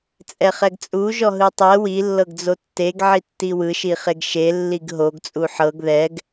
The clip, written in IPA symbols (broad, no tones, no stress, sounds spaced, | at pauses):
t͡sʼ ɛ χ ɛ ɡ t͡sʼ u ʒ ɔ ɦ ɯ tˤ ɛ w i lː ɤ ɡ d͡z o tː e ɡ ʕ i tː i w ɯ ʃ i χ e ɡ ʃ e lː i ɡ ɦ o ɡ t͡sʼ u ħ ɤ ɡ ð ɛ ɡ